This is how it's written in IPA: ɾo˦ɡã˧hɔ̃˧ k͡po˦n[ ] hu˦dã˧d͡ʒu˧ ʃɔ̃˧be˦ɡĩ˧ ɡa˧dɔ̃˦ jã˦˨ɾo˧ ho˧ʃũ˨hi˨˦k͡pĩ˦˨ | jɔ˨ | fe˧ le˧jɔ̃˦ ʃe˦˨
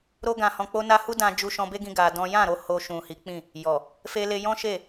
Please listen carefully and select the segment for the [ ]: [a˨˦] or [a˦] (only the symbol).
a˦